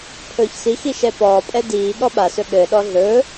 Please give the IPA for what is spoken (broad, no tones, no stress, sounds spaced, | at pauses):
pʰ ɵː ç s i x i ʃ ɛ p ɔː pʼ ɛ d iː ɠ ɔ ɓ a s ɵ ɠ ɘː ɗ ɔ ɮ ɵː